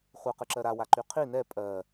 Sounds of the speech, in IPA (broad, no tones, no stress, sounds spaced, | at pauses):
χʷ ɯ q ɯ ǁ ɜ ɾ a w a ǃ y qʰ i n ɛ pʼ ɜ